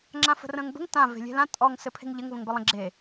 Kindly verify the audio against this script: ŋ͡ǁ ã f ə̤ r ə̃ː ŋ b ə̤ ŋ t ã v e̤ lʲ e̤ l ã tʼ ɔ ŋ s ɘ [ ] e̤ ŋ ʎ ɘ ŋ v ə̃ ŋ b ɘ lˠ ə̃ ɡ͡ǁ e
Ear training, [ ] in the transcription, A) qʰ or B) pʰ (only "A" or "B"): B